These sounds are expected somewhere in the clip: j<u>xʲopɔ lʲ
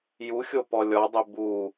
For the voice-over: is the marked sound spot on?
yes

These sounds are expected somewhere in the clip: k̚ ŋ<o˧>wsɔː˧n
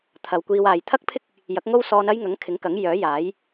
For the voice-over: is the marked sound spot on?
no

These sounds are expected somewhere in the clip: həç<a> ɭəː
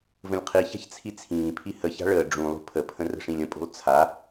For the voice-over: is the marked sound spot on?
no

